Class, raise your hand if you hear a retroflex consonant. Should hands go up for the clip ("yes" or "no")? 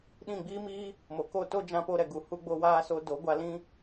no